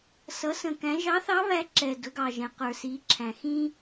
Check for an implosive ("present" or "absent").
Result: absent